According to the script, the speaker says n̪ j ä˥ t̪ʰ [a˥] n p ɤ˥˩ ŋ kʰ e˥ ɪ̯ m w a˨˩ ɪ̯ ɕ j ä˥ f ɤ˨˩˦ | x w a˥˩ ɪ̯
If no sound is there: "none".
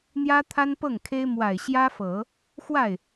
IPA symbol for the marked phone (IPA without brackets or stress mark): a˥